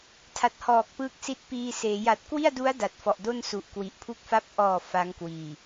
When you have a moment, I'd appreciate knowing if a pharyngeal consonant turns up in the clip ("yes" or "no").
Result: no